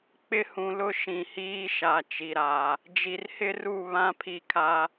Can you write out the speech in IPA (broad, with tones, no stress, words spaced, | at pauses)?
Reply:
k͡pɪ˦hũ˨lʊ˦ ʃĩ˨hiː˦ʃa˨ t͡ʃi˨ɾa˨ | d͡ʒi˨rhɪ˦ru˦˨ βã˦ pʰi˦˨kʰa˦